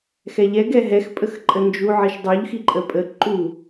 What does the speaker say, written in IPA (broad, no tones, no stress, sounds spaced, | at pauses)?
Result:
x ɛ ʎ ɛ ɡ ɛ ɦ ɛ x pʼ ə x ǃʼ ə n d͡ʒ u ʕ i ʃ dˤ u ʎ x i ǃʼ ə pʼ ə ǃ u